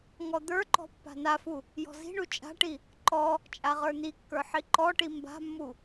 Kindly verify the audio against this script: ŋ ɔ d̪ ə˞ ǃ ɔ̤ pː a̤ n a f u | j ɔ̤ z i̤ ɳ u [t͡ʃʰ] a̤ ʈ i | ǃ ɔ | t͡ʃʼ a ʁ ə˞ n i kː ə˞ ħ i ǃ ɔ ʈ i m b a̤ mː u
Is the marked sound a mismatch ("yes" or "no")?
yes